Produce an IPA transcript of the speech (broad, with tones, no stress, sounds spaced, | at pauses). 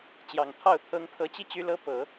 t͡ɕ j ɑ˨˩ ŋ t̪ʰ ɑ˥˩ ʊ̯ t̪ʰ ɤ˧˥ ŋ pʰ ɤ˧˥ t͡ɕ i˥˩ t͡ɕ y˥ l ɤ˥ p ɤ˨˩˦